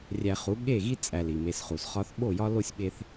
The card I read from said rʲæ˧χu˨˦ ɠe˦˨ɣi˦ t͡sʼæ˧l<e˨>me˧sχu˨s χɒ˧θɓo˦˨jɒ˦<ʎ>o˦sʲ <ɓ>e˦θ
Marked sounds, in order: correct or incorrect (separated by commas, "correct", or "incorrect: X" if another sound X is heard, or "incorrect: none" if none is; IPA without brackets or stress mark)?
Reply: incorrect: i˨, incorrect: l, correct